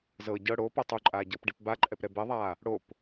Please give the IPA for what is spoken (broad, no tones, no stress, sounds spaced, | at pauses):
z ɤ ɟ ɤ ɽ o p ɤ tˤ u ǃʼ aː ɟ ɤ p ɖ i p b a ǃʼ ɛ p ɾ ɛ b ɛ ðˤ aː | ɽ o p